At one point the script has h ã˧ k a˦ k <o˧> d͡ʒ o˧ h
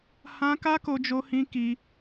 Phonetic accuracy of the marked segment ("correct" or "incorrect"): correct